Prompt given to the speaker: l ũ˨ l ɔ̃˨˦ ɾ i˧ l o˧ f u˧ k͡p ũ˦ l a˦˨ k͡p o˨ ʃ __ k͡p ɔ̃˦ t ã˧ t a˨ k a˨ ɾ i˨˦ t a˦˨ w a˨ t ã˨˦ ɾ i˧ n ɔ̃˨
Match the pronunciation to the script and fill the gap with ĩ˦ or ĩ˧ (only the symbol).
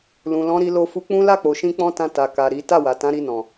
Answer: ĩ˧